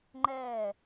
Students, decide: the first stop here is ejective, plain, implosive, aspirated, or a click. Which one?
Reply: click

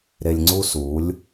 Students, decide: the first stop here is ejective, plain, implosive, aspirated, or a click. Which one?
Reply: click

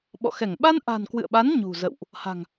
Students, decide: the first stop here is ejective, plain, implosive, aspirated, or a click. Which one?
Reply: implosive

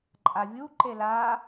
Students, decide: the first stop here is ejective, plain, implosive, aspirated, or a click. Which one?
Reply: click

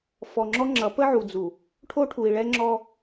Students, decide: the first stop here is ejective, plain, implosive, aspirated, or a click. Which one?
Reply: click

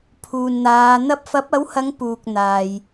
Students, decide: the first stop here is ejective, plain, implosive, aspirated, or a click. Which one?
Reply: aspirated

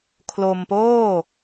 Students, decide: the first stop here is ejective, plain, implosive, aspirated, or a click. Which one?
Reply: aspirated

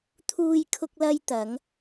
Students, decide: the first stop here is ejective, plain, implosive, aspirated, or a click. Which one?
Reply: aspirated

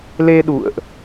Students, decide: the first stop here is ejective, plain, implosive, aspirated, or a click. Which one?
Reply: implosive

